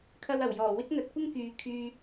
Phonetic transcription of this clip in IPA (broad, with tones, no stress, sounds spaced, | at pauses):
kʰ ɐ˧ w ɐ˨˩ w j ɔː˨˩ w ɪ˥ k̚ n̪ ɐ˨˥ t̚ kʷ ɪ˥ ŋ k yː˨ kʰ yː˨